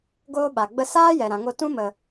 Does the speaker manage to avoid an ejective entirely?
yes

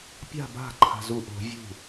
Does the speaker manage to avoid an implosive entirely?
yes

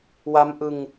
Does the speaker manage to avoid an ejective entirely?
yes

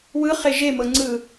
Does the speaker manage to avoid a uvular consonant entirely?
no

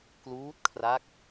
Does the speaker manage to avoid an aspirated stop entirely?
no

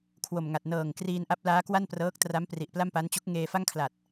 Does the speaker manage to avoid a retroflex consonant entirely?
yes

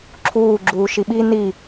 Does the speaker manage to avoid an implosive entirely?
no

